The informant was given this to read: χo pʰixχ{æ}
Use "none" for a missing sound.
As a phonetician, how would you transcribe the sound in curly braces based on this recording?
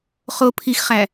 æ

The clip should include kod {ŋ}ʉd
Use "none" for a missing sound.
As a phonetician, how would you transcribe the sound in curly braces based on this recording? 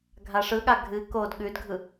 ɠ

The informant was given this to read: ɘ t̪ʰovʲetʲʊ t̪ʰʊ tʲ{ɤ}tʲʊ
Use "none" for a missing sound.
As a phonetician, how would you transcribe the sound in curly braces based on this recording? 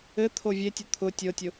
ɤ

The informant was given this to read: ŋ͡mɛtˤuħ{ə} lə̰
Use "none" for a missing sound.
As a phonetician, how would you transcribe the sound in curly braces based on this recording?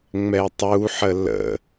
ə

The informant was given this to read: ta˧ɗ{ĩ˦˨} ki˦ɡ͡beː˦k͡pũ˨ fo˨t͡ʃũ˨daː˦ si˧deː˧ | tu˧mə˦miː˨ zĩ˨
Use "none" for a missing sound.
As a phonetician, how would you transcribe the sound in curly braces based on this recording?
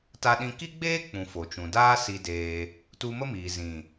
ĩ˧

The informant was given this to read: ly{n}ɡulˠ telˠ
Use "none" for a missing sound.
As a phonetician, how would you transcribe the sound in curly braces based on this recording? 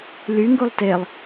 ŋ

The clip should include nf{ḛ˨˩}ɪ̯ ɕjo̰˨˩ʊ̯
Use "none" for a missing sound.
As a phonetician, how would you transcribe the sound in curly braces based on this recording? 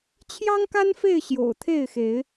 e˥˨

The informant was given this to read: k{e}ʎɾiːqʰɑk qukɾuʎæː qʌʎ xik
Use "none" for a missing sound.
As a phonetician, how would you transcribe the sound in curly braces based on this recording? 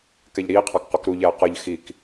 ɛ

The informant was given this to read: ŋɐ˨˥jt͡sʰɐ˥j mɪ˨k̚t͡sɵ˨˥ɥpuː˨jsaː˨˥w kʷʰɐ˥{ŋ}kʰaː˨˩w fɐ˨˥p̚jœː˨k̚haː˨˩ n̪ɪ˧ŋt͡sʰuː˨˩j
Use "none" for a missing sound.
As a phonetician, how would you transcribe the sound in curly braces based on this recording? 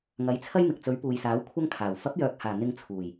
ŋ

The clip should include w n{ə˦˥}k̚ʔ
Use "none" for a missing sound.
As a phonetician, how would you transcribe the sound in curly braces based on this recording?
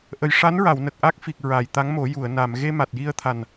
ə˨˩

